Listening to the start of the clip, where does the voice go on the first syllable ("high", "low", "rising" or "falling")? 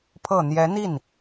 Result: low